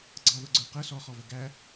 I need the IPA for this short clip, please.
ɡ͡ǀ ɑ ð ʊ ɡ͡ǀ ə˞ q ə s ɔ χ ɔ v ə ɡ æ

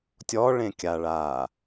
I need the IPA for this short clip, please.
tʲ ɔ ɭ ẽ kʲ a ɭ aː

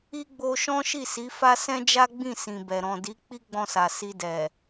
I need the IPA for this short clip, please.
i˦ ɡ͡b o˧ ʃ ɔ̃˦ ʃ i˦˨ s i˨˦ f a˦ s ɛ̃˦ d͡ʒ a˦ ɡ͡b ĩ˦˨ s ĩ˨ b ɛ˨ ɾ ɔ̃˨ d i˨˦ k͡p i˦ ɡ͡b ɔ̃˧ s a˨ s i˧ d ɛ˨

